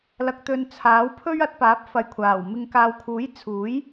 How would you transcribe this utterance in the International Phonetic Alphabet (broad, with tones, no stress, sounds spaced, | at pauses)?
l ɐ˨ k̚ t̪ ɵ˨ n t͡sʰ aː˨˥ w pʰ ɵ˥ ɥ ɐ˨˥ t̚ p aː˨˥ p̚ f ɐ˨˧ j kʷʰ aː˨˩ w m ɪ˨ ŋ k aː˨ w kʰ uː˨˥ j t͡sʰ uː˨˥ j